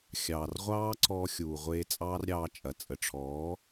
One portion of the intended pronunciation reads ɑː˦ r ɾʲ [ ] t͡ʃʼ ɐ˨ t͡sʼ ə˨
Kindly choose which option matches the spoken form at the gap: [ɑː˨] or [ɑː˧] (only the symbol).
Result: ɑː˧